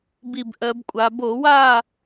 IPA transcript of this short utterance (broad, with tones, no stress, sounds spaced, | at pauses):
b i˧˩ b ʔ ɜ˩˧ b kʷʼ a˩˧ b o˧˩˧ w aː˥˨